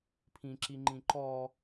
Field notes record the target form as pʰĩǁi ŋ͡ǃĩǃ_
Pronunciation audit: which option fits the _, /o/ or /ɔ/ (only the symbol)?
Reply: ɔ